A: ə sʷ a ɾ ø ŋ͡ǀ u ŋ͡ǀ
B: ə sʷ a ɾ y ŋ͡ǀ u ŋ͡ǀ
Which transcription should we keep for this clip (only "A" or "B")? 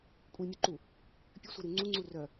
B